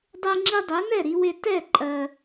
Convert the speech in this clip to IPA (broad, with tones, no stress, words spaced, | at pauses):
dˤe˧ŋ͡ǁi˧dˤe˩˥nɛ˥˩ ɾi˧we˧ tɛ˥˩ ǃʼɜ˧